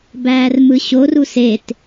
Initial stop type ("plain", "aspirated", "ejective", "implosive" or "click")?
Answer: plain